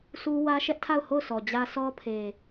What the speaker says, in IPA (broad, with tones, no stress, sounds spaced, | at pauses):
s u˦ w ä˦ ʃ ɛ˦ ʔ tʰ a˦˨ ʊ̯ h o˦˨ ʊ̯ s ɔ˨ d͡ʑ ä˦ sʰ ɔ˦ pʰ e˨